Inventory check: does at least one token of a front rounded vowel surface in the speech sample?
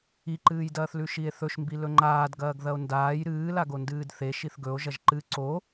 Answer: no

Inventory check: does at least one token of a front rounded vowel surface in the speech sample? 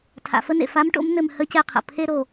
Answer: no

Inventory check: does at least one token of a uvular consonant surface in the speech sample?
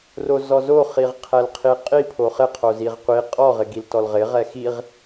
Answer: yes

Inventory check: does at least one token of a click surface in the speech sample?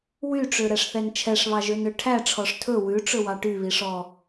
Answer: no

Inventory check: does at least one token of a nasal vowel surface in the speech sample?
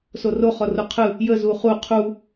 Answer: no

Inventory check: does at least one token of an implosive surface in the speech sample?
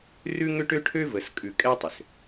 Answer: no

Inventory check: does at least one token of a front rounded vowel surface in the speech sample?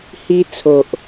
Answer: no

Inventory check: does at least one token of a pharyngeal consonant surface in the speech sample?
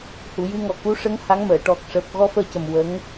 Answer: no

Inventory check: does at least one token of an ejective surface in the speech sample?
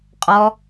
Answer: yes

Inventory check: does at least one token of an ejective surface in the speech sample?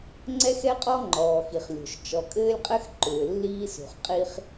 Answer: yes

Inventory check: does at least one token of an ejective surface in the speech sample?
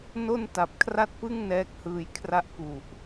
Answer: no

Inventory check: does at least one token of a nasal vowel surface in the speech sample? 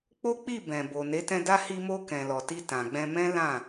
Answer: yes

